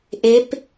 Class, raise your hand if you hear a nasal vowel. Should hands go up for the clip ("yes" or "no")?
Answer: no